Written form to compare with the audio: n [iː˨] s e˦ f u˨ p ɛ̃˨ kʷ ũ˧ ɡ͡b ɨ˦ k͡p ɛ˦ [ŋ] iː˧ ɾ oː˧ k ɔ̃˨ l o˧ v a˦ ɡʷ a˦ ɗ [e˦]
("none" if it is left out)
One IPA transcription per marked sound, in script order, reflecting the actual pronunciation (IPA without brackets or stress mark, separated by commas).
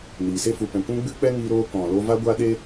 iː˨, ŋ, e˦